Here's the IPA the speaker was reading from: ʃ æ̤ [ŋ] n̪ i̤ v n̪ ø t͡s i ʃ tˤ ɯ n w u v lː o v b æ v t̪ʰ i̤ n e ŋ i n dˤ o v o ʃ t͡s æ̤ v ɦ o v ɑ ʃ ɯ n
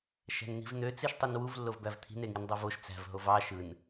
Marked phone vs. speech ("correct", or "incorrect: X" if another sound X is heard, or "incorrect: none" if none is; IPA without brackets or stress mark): incorrect: n